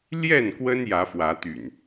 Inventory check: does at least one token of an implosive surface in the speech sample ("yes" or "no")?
no